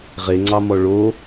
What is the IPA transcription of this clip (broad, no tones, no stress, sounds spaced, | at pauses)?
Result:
ʁ e ŋ͡ǀ ɑ m ɔ ɭ o